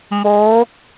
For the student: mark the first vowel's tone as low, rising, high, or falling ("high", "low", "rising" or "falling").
rising